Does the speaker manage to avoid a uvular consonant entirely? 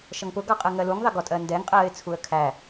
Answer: no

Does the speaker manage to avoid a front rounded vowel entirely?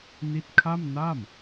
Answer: yes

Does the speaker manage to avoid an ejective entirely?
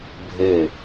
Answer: yes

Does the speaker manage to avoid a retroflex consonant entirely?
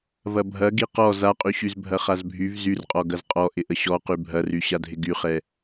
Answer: yes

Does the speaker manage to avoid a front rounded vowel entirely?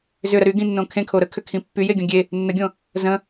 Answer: no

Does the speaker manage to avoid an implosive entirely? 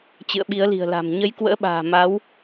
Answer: no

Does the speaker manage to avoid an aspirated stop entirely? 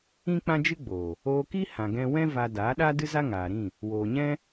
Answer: yes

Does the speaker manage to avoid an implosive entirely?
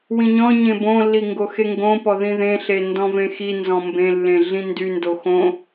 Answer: yes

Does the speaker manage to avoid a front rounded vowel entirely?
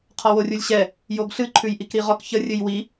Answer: yes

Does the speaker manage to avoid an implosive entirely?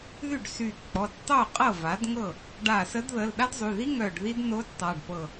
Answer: no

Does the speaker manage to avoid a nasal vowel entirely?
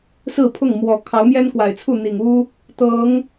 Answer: yes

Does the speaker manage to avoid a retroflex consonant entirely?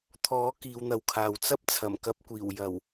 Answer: yes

